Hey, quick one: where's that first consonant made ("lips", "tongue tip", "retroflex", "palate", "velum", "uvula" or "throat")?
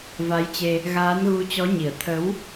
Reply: lips